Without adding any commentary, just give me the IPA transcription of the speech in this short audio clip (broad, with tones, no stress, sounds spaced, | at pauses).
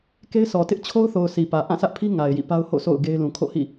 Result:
k e˦ ɪ̯ sʰ ɔ˨ t ɪ˦ ʔ t͡ɕʰ o˦ ʊ̯ θ o˨ ʊ̯ s i˨ p ä˨ ʔ ã˦˨ sʰ ä˦ ʔ pʰ i˦ ŋ a˨ ɪ̯ j ḭ˦˨ p a˦ ʊ̯ h o̰˦˨ sʰ o̰˦˨ ʊ̯ ɡ e˦ ɪ̯ l ũ˨ kʰ o̰˦˨ h ḭ˦˨